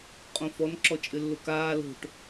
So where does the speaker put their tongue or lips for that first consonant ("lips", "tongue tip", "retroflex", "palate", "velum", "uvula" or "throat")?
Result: uvula